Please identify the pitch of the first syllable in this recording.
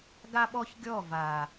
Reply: high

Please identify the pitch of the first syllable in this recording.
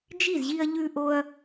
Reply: falling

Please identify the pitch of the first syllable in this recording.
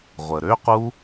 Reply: low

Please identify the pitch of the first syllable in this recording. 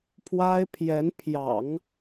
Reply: high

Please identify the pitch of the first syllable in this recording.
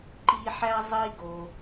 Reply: high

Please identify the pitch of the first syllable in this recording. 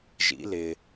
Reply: rising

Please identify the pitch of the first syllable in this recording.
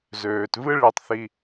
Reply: low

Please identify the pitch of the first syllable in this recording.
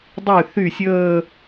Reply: falling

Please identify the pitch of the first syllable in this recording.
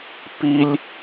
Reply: high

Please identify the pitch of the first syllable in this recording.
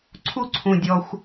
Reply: high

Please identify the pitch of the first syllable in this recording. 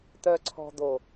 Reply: low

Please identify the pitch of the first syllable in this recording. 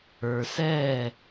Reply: low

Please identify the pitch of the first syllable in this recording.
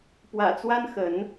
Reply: low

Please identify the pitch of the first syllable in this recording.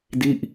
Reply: falling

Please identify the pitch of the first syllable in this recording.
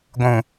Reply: low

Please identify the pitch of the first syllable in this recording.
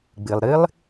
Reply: low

